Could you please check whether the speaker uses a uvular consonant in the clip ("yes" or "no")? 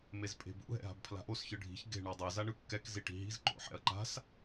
no